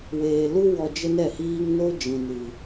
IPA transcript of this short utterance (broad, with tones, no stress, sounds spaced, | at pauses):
w eː˨ l u˦ w ɔ˧ d͡ʒ ə˦ n ɛ˦˨ h iː˦ ŋ n o˦ d͡ʒ ĩ˨ n ɨ˨